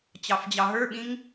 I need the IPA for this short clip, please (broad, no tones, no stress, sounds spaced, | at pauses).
t͡ɕ ɑ f d͡ʑ ɑ ɦ ə˞ ɓ ĩ ŋ